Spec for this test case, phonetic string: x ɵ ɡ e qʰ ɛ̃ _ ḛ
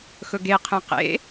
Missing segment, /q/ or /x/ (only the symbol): q